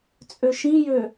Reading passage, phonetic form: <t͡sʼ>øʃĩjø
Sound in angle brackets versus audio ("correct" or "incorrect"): correct